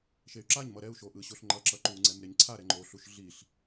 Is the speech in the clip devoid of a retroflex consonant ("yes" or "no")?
yes